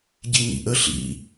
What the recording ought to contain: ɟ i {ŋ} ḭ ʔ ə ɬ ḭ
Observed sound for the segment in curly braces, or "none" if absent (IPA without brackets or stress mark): ŋ